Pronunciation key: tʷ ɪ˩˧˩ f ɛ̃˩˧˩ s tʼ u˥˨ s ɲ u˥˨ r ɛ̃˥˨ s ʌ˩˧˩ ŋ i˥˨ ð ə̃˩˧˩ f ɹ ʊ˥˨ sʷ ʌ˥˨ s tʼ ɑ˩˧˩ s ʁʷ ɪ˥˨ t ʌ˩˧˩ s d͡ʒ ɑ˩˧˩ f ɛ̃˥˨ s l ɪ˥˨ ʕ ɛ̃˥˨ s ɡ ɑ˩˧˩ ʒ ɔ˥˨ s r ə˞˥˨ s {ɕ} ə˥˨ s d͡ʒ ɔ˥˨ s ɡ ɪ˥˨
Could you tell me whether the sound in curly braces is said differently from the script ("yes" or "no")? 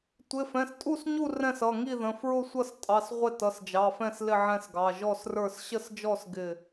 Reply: no